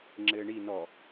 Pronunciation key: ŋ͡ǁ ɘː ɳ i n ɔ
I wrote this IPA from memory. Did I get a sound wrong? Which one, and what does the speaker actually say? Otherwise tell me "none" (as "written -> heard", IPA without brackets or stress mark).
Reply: none